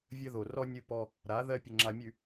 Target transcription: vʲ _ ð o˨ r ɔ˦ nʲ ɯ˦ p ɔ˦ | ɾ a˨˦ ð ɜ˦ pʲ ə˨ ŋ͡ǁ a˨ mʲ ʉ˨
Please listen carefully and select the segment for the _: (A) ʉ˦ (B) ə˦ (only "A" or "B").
B